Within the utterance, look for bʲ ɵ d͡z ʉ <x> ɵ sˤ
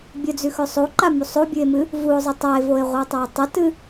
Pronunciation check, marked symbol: correct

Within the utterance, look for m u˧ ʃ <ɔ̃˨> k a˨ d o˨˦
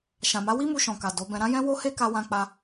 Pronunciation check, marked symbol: correct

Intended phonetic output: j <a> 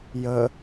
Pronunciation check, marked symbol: incorrect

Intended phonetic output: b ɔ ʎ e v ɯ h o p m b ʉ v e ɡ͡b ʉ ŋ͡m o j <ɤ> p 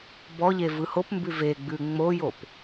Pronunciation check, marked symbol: incorrect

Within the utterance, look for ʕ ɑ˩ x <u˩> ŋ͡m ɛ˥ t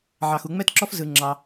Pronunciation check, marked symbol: correct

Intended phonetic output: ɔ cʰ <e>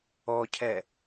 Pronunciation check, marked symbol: incorrect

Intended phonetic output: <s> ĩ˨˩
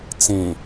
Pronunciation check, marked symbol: incorrect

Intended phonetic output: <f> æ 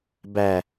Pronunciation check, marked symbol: incorrect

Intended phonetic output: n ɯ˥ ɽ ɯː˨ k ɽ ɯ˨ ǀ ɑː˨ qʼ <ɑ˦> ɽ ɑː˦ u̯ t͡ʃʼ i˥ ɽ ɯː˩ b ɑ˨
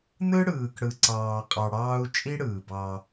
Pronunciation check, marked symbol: incorrect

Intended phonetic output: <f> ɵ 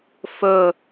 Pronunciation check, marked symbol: correct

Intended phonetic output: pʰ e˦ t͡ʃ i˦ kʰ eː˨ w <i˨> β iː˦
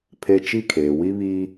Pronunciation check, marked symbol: incorrect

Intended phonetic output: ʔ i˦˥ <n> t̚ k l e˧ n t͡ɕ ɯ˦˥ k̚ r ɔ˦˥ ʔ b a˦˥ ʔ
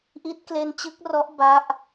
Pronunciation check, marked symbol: incorrect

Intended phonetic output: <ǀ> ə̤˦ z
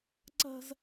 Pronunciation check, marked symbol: correct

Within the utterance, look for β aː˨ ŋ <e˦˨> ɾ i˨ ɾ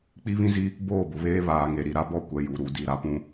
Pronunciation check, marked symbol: incorrect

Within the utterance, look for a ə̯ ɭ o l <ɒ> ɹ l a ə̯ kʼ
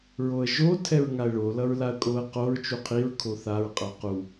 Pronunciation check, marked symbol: incorrect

